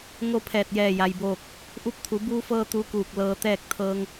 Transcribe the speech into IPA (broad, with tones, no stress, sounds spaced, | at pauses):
ŋ o˥˨ pʰ ɛː˧˩ t̚ j ɛː˧˩ j a˩ j b oː˧˩ k̚ | ʔ u˧ p̚ t̪ʰ u˩˧ b uː˧ f ɤː˧ t̪ u˧˥ k uː˧˩ k̚ l ɤː˧ t̪ ɛː˥˨ k̚ t̪ʰ ɤː˧ ŋ